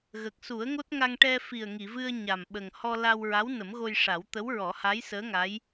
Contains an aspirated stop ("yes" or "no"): no